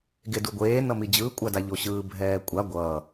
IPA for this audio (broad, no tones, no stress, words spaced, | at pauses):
ɡeduɡʷeː nʌmid͡ʑɯː kʷʼadaʎoɕɯː bʱɛːkʷʼa ɡʷʌː